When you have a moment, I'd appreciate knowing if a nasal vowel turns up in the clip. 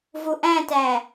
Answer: yes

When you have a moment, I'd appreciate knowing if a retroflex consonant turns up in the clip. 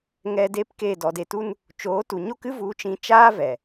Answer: no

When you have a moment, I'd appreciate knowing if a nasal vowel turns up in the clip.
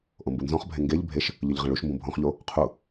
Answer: yes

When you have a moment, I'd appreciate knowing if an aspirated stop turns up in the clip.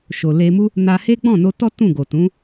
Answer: no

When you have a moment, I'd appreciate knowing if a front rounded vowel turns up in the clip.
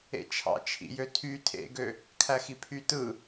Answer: yes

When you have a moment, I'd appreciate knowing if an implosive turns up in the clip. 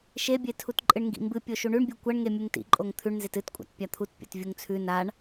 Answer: no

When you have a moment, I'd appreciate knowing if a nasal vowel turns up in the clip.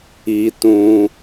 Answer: yes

